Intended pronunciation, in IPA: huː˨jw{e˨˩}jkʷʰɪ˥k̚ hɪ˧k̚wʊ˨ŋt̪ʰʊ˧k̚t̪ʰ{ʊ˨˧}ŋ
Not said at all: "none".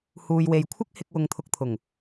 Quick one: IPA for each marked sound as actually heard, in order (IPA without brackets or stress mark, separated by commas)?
e˨, ʊ˨˩